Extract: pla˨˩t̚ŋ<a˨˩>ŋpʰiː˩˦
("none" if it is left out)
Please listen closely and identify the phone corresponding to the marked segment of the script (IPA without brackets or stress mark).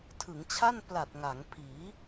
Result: a˩˦